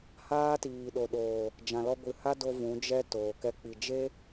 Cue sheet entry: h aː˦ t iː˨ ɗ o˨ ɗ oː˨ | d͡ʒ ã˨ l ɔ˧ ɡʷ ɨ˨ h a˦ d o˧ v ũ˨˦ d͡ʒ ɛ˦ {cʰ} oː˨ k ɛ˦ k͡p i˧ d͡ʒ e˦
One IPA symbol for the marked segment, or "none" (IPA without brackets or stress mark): t